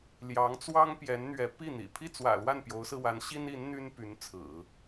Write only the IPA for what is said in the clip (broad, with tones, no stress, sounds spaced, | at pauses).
l j ɑ˧˥ ŋ t͡s w ɑ˥ ŋ p j ɛ˧˥ n n̪ ɥ ɛ˧˥ p i˥˩ n̪ ḭ˨˩ pʰ i˥˩ t͡s w ä̰˨˩ l w a˥˩ n p j o˧˥ ʊ̯ s ɹ̩˧ w a˧˥ n ɕ i˥ n i˧˥ n n̪ y˥ n p y˧˥ n t͡sʰ ɹ̩˨˩˦